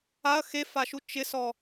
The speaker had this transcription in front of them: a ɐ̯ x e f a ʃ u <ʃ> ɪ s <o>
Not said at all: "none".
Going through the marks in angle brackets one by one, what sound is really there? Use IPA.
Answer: t͡ʃ, ɔ

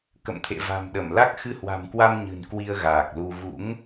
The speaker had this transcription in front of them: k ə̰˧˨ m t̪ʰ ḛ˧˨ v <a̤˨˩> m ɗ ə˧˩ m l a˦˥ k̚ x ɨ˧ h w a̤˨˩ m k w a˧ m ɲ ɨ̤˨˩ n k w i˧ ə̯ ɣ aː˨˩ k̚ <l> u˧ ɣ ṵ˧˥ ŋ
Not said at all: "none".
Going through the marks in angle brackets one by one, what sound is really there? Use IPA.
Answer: a̤˨˩, l

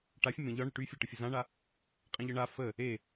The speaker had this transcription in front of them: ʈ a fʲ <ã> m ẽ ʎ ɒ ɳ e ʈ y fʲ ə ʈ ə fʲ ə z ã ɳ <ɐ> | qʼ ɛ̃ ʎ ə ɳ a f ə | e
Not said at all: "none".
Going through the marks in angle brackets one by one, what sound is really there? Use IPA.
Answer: ə̃, a

